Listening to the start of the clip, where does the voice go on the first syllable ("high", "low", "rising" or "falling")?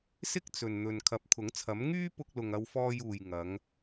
high